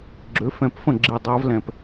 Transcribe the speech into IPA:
ɡ͡ǁ ø˩˥ f ɛ̃˧˩ p f ə̃˥˩ ɡ͡ǁ i˧˩ dˤ a˧˥ v l ɛ̃˧˩ p

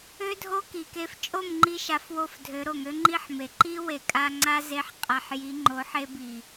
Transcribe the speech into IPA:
ø˦ dʱ o˦ k i˨ k e˧ f t͡ʃʼ o˦˨ m ŋ͡ǃ i˧ ʃ a˧ f w o˦˨ f dʱ ø˨˦ ɾ o˨ ŋ ø˦ ŋ͡ǃ i˦ ħ m e˨ ǃ i˦ w e˨ kʼ a˧ ŋ͡ǀ a˦ z e˧ ħ qʼ a˨ ħ j i˨˦ ŋ͡ǃ o˨˦ ħ e˧ b i˨

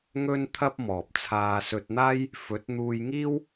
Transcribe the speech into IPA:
ŋ ɵ˥ n t̪ʰ ɐ˥ p̚ m ɔː˨ p̚ t͡sʰ aː˧ s ɵ˧ t̚ n̪ aː˥ j | f ɵ˨˥ t̚ n̪ uː˧ j ŋ iː˥ w

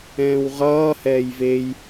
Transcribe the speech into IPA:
ɛ̃ː w ʁ ʌː h ɛː j v e j

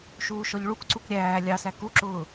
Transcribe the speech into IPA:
ʃ uː ʃ ɔ ʎ ɭ u k ǀ u k ɾʲ æː lʲ ɑ s æ k u ǁ ʊː

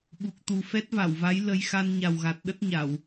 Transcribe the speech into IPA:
ɓ u˨˩ k̚ t̪ u˨˩ f ɛ˦˥ t̚ v a˧˩ w v a˨˦ j l ə˧ j x a˧ n ɲ a˨˩ w ɣ a˨˩ t̚ ɗ ə˦˥ t̚ ɲ a˧˩˨ w

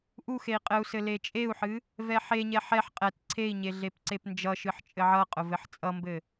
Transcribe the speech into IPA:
ʔ u x e i̯ qʼ ɘ u̯ s ɘ l e t͡ʃʼ e u̯ ħ ɨ | v ɛ ħ e ɲ ɛ ħ ɛ ħ qʼ ɛ t ǀʰ e i̯ ɲ e ɮ e p ǀ e p n d͡ʒ ʌ ʃ ɨ ħ t͡ʃʼ ɘ ʕ ʌ qʼ ʊ v ɘ ħ t͡sʼ ʌ m b ɘ

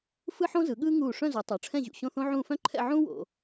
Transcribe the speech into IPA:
f ɯ˥ ħ õ˥ z ɯ˩˧ ɠ ɯː˥ ŋ uː˧˩ ʂ œ̃˥˧ z u˩˧ tˤ o˩˧ ʈ͡ʂʰ ɛ̃˥˧ ʑ ṵ˧˩ ɕ õ˥˧ θ õ˥ ʕ ũː˥˧ f œ̃˥ ǃʰ ɛ̰˥˧ ʕ ũː˥ w o̰˩˧

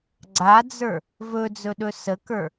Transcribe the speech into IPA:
ɡ͡ǀ a d͡z ə˞ | v ɵ d͡z ɵ ɗ ɵ s ə k ə˞

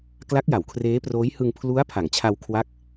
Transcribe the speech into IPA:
k l a˦˥ k̚ j a˩˦ w kʰ r eː˦˥ p r oː˦˥ j h ɯ˧ ŋ pʰ l u˦˥ a̯ pʰ a˩˦ ŋ t͡ɕʰ a˧ w kʰ w a˦˥ k̚

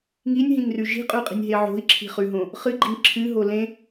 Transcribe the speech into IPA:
ŋ i nʲ ɦ ĩ ŋ r ʉ ʒ i̤ qʼ ʉ qʼ i̤ nʲ ɦ e ʕ o̤ i̯ ǁʰ i̤ χ ʉ ɦ õ | χ ɨ ɡ͡ǃ i ŋ ǁʰ ɨ ɦ o l ẽ

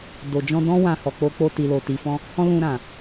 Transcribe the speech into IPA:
d o˨ d͡ʒ ɔ̃˧ d ɔ̃˦ w ã˧ h ɔ˨ k͡p o˧ k͡p o˧ t i˨ l o˨ t i˨ f ɔ̃˧ | h ɔ̃˧ l ũ˧ ɾ ã˨

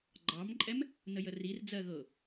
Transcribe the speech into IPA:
ɡ͡ǃ ɑ m ǃʼ ɛ m | n ə j ə r i r d͡z ɜ ɣ ɤ

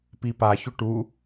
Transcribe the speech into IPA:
p i p a ç ʊ ʈ u

